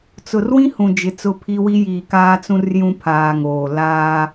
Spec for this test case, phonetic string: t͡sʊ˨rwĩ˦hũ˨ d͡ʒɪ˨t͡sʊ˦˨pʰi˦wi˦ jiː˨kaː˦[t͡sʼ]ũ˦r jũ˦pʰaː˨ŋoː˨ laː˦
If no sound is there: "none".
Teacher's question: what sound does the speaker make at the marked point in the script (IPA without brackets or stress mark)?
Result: t͡s